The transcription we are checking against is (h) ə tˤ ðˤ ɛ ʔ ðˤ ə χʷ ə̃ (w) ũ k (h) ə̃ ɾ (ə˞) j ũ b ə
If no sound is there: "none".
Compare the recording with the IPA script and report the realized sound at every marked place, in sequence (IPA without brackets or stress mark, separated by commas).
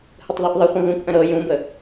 h, ɣ, ʔ, ɤ